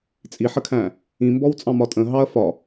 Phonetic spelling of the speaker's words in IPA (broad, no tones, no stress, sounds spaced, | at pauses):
t͡sʼ i ħ ə kʰ æ̃ | ĩ m b ɔ w t͡sʼ ɑ̃ m ɒ tʼ ə̃ ɦ ɑ ɐ̯ f ɒ